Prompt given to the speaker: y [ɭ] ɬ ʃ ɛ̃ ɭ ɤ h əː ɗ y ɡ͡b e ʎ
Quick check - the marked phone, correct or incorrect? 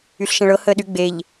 incorrect